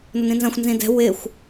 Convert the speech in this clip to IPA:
n o n ĩ n z ɐ̃ xʷ n z ĩ d ɛ̤ w ɪ xʷ

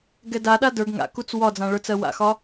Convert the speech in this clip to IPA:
ɡ ɛ d a ɗ a d ə˞ ɡ ŋ a̰ k u t͡s w ɒ d͡z ã ɭ ə˞ t͡s ɜ w a̰ x ɒ

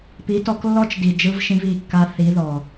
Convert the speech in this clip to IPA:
p i˨˦ t ɔ˧ k lː ɔ˦ t͡ʃ d i˨ d͡ʒ ɯ˧ v ʃ ĩ˧ v i˦˨ kː a˧ θ i˨˦ ð ɔ˨

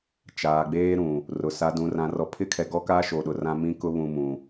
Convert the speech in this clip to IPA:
t͡ʃ aː˨ ɡ͡b eː˦ ɾ ũ˨ | r ʊ˨ s a˨ d ũ˨ r ã˨ r ɔ˨ pʰ ɪ˦ kʰ ɛ˨ ɡ ɔ˦ k a˦ ʃ o˨ ɗ ʊ˨ r ã˦ m ĩ˦ k ʊ˦ β ũ˨ m ũ˨

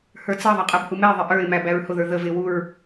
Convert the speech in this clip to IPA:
h ə˞ t͡s ʌ ðˤ ʌ qʼ ɛ b h u m ɛ ɪ̯ ðˤ ɪ ʔ ə˞ ɪ̯ m æ b æ ɹ h ʊ ð ə˞ ð ə v ɪ w u ɹ

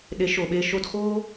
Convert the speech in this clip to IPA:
ɗ e˨˦ ʃ o˨ ɓ e˧ ʃ o˧ d x oː˦

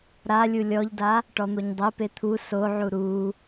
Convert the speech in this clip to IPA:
ɾ a lʲ u lʲ ɔ ʎ d a | ʈ ɔ n̪ o ɲ dˤ e p e t̪ʰ u s o ʕ u ɾ u

